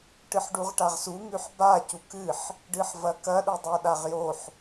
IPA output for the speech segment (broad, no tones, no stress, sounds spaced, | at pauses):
ʈ ɨ ħ ɖ u ʁ ʈ a ʁ s u ŋ ʉ ħ b a c u k ɨ ħ | ɖ ɨ ħ v ɐ k ɐ ɗ u dˤ o ɗ a ʁ j o ħ